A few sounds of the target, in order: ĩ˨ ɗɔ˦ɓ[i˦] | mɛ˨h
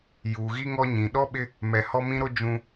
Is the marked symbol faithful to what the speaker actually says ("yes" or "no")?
no